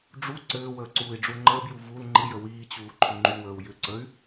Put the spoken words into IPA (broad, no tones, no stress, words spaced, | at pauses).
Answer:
ɖ͡ʐu ǀɘːwəː ǀuːi̯ɖ͡ʐuŋ͡ǃəːbju vul ŋ͡ǃijə wiːt͡ɕuː ǃʰʏŋ͡ǃuwəːu̯ jʏǀəy̯